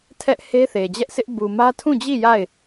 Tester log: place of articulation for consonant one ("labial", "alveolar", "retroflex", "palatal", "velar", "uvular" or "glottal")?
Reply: alveolar